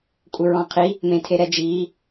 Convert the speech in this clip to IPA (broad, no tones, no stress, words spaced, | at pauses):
kʷʼɪɹɔ̃qʰi | mẽtʰeɾɛd͡ʒiː